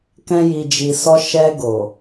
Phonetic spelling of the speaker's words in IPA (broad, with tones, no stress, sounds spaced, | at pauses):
k ɛ̃˧ j i˨ d͡ʒ i˨ s ɔ˧ ʃ ɛ˧ ɡ o˨